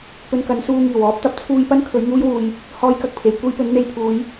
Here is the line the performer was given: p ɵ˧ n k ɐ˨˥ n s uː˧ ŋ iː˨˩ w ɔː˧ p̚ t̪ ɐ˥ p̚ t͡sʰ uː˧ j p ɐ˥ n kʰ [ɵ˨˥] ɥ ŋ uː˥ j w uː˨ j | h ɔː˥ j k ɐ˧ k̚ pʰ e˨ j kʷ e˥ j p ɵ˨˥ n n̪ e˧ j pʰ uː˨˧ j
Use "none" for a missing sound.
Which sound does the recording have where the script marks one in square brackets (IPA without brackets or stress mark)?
ɵ˨˥